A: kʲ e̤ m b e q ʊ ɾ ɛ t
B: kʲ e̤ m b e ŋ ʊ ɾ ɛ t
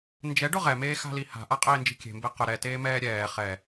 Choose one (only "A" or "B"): A